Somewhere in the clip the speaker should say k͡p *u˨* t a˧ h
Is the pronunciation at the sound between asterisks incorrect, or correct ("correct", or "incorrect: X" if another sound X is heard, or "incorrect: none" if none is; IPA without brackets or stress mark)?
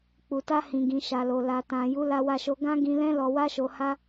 correct